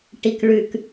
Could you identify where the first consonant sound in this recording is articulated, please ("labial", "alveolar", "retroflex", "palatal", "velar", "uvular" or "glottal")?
retroflex